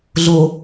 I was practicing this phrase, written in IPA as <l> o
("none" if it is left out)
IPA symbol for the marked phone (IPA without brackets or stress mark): ɮ